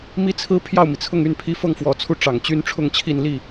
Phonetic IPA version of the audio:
m i˥ t͡sʰ ɹ̩˥ pʰ j ɑ˥˩ ʊ̯ m i˩ t͡sʰ ʊ˥˧ ŋ y˥˩ n pʰ i˥ f ɤ˥˩ ŋ f w ɔ˧˥ t͡sʰ u˥˩ ʈ͡ʂ ɑ˨˩ ŋ t͡ɕ y˥ n ʈ͡ʂʰ ʊ˥˧ ŋ t͡ɕʰ i˥˧ n l i˥˩

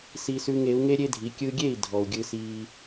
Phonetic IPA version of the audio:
s i˥ s ʉ˥ ŋ e˩˥ u̯ ŋ e˥ ɾʲ e˥ dʱ i˩˥ kʲ ɯ˧ ɡʲ e˥˩ i̯ dʱ ɔ˩ u̯ ɡʲ ɯ˧ s iː˧

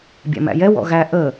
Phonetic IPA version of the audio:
bʲ æ̰ m æ̰ j ɛ w ɔ̰ ɣ æ ʔ ə

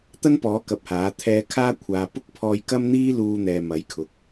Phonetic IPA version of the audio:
t̪ ɐ˥ n p ɔː˨˥ k ɐ˧ p̚ h aː˨˥ t̪ʰ ɛː˧ kʰ aː˥ kʷʰ aː˨ p ʊ˥ k̚ pʰ ɔː˧ j k ɐ˥ m n̪ iː˥ l uː˧ n̪ ɛː˨ m ɐ˨˥ j kʰ ʊ˨ k̚

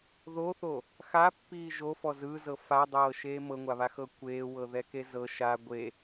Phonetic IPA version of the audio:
ð o θ o | x a pː iː ʒ o f ɔ z ɯː z ɤ f a dˤ ɤː ʃ eː m ɤ ŋʷ a β a x ɤ kʷ eː w ɤ ð ɛ k e z ɤ ʃ a ɡʷ e

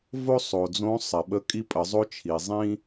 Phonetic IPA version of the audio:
v o˥ sˤ o˩ d͡z õ˧˥ sˤ ɛ˩ ɓ ə˧˥ kʼ i˥ pʼ ə˩˧ zˤ o˥ t͡ʃʰ i˩ zˤ ĩ˥

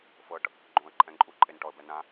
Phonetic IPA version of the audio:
f ɤ ʈ | ɡ͡ǃ õ ə̯ ǃʼ ɛ̃ ǃʼ u ǃʼ e n ʈ ɔ ə̯ b ɛ n ã

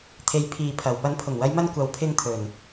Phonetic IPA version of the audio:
t̪ʰ e˨˧ j pʰ iː˨ pʰ ɐ˨˩ w p ɐ˨˥ n pʰ ʊ˨˩ ŋ w ɐ˨˧ j m ɐ˧ n kʷ ɐ˨ w pʰ ɪ˧ ŋ t̪ʰ ɵ˨˩ n

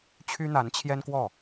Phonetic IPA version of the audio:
t͡ɕʰ y˥ n̪ a˧˥ n t͡ɕʰ j ɛ˥ n k w ɔ˥˩

